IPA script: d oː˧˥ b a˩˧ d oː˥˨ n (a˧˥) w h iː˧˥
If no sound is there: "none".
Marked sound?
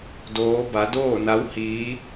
a˧˥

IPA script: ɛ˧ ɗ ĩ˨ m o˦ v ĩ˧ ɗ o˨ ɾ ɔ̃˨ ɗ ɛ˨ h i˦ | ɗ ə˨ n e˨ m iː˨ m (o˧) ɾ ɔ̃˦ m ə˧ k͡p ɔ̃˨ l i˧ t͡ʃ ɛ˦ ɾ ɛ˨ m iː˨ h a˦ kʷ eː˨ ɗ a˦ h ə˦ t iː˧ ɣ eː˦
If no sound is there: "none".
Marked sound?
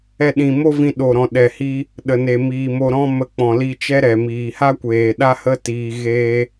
o˧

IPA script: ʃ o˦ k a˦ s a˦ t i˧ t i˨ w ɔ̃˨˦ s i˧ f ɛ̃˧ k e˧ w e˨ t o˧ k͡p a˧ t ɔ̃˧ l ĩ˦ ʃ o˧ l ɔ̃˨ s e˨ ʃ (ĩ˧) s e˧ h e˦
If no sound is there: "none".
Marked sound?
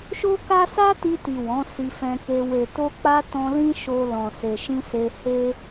ĩ˧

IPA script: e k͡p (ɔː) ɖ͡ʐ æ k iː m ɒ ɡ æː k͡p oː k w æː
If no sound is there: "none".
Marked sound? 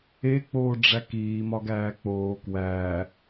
oː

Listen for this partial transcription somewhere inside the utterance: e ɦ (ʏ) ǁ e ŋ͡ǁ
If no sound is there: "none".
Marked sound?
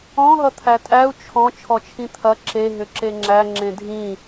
ʏ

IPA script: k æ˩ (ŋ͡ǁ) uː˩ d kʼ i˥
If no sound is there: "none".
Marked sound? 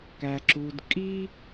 ǁ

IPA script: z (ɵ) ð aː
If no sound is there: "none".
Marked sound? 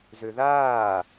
ø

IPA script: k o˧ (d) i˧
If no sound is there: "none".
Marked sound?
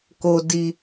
d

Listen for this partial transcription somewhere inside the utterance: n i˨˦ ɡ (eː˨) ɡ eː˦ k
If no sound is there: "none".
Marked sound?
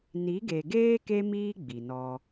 e˨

